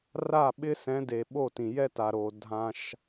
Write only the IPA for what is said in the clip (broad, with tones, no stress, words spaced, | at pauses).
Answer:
ra˦˨ɓɪ˦sɛ̃˨˦de˨ ɓo˦˨tĩ˨ jɛ˦ta˨ ɾo˨ dʱã˦ʃ